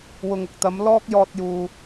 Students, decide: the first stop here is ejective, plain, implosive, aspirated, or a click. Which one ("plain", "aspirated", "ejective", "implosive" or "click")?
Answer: plain